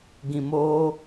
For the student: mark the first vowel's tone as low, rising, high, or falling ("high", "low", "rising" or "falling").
low